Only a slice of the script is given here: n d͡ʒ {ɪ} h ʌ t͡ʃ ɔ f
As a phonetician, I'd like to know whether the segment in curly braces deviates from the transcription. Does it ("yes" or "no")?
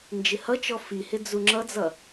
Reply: no